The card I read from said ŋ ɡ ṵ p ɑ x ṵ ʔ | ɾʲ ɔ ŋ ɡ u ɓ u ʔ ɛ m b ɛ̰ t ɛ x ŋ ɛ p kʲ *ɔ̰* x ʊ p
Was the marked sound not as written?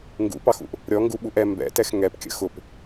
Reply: yes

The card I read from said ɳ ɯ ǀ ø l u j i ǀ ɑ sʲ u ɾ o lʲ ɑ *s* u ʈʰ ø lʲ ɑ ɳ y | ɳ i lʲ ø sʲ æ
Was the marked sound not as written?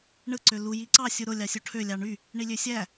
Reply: yes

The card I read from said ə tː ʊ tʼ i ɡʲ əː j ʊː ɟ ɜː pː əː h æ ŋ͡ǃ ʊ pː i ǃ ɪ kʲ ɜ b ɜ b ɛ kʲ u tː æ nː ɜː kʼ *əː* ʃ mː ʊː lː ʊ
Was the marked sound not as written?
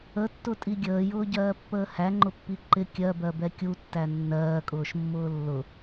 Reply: yes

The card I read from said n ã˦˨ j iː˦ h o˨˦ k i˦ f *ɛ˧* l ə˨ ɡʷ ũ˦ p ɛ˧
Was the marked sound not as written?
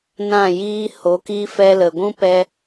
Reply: yes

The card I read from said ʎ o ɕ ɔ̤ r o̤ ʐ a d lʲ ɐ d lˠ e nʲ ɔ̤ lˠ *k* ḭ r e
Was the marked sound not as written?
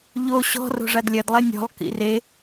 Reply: no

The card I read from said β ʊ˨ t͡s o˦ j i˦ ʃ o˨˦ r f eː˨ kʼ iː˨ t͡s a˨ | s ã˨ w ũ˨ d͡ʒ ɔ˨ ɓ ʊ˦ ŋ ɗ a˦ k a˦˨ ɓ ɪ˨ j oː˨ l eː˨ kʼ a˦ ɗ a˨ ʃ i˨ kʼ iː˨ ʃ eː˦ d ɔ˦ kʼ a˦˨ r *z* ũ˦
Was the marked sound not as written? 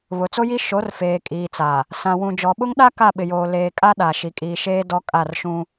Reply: yes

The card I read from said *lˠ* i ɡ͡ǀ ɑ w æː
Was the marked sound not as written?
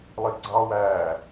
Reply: no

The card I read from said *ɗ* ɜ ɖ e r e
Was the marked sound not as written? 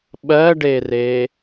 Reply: yes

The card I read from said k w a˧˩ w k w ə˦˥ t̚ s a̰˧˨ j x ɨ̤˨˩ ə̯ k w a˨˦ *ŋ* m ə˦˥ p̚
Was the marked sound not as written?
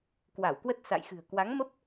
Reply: no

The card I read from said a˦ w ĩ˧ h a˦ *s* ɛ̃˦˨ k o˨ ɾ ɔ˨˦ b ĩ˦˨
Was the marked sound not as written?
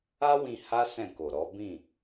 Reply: no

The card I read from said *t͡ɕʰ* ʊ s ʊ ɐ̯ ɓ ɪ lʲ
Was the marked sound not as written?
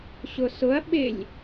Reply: yes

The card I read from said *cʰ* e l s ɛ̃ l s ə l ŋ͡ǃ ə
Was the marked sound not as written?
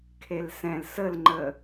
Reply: yes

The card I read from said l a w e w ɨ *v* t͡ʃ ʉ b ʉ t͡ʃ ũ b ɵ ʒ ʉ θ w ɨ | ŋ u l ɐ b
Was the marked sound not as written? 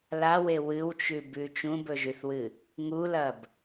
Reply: yes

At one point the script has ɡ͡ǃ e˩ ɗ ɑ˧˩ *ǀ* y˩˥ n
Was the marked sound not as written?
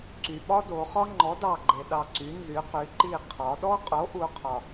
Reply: no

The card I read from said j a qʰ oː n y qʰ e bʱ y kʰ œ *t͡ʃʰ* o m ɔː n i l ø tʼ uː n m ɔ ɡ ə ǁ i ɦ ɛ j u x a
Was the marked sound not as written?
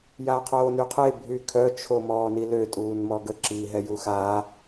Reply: no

